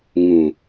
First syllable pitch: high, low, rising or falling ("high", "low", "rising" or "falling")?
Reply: low